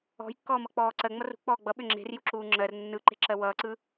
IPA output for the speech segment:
ɔ̤jkːɔː mʌk͡pɔːǀɜ ŋ͡mʌrṳ k͡pɔːɡ͡bʌɓʏ ŋ͡ǁe̤rju ǁuːŋ͡ǁɜr nːɯǃe̤ ǁɜwʌːǀɯ

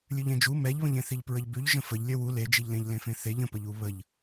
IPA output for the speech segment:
lʲʉʎẽd͡ʒu mɛʎβə̃ʎẽθiʎ pɹəʎbʉʎ ʒə̃fəʎ lʲœwu led͡ʒiʎlẽʎ lẽfẽθeʎ ə̃pəʎu βəʎ

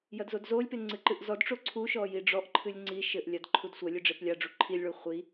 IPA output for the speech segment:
jɐdzodzolʲpe ŋ͡ǀɨǃɨʔzɔdʈ͡ʂo ǀʰuʃɔ jiɖ͡ʐɔʔǃʰɨlʲ ŋ͡ǀi ʃɘʔlʲad ǃʰudsʷɐlʲɨ ɖ͡ʐeplʲaɖ͡ʐu ǃʰilʲɭu χʷi

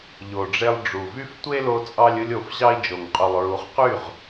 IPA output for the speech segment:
ʎo˨ɖ͡ʐe˧lˠ ɖ͡ʐu˨vy˦f tʷe˦lo˧ t͡sʼɑ˦lʲɯ˦lʲo˧fʑɑ˦i̯ d͡ʒo˨ŋqʼu˨lˠɹu˨˦χqy˦˨ʁ

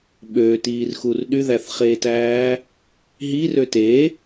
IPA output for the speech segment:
ɓøtiːrxur ɗyðæθχeːtæː | ɦirø te

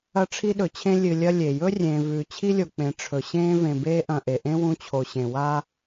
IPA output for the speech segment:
ɐ˦ʈ͡ʂʰi˦ɗɵ˨t͡ɕʰẽ˦ lʲɨ˨lʲɐ˦ lʲe˩jɵ˥rʲẽː˨ vʉː˨t͡ɕʰi˥lʲo˨k͡pẽ˨ ʈ͡ʂʰɵ˩ɕẽː˦ vẽ˨beː˦ʔɐ̃˨ ʔe˩ʔẽ˥ wũ˦t͡ɕʰo˨ɕẽ˨ wa˦

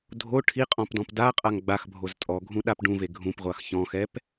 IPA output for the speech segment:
dʱo ʈʰiqʼɔ̃pdɔ̃p daqʼaŋ ɡ͡baxbʱoz tʼɔɡʱũɗap ɖũve ɡʱũpʁʷax çɔ̃xɛp

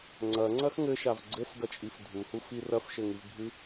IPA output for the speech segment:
ŋ͡ǀɐŋ͡ǀɐx ŋɘʃav ɡ͡ǀɘsɡɐt͡ʃʼif dʱuhufi rɐfʃɘŋivbʱɨ

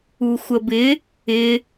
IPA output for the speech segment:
uxʷəbɪ | ɪ

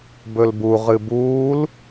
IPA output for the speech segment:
bɵlbu ʁɨbuːl

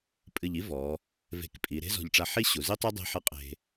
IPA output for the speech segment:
pʼɨ˧˩ʎi˥ vɔ˩˧ | ve̤˧˩kpʼi˩˧ ɾe̤˥zɔ̤˧˩ʎʈ͡ʂa˧ħi˥ ɕu˩˧zi˥tˤe˥ dˤe̤˥ħɨ˥˧ qʼe̤˧

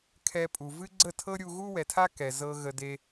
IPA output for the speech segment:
kʰɛ˧pʼu˨ vɨ˦ɡ͡ǀə˦˨tʰɤ˦ɾʲu˧ ɣu˦wɛ˨tʰa˦ kɛ˨zɤ˧ ɣə˨ de˧

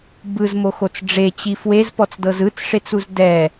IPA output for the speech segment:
bɯzmoxot͡s ɖ͡ʐet͡ɕi fwezpɔt͡sdɤz ɯt͡sʂet͡suz dɛ

